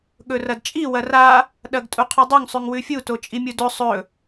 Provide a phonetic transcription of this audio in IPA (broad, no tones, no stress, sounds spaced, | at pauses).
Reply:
ɠ ɵ r ɐ d t͡ʃʼ i w ɐ r a | ɗ ɐ ɡ tʼ u qʰ ɵ dˤ o ŋ sˤ ʉ ŋ w ʉ fʲ u t o t͡ʃʼ i mʲ u d ɵ sˤ ɵ